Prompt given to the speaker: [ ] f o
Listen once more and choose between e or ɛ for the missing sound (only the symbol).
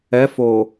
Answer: ɛ